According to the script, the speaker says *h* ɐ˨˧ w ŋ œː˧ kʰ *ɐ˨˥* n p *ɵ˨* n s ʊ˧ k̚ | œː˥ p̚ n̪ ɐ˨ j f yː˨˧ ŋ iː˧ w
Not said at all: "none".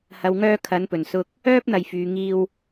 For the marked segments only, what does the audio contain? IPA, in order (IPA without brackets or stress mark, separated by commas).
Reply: h, ɐ˨˥, ɵ˨˩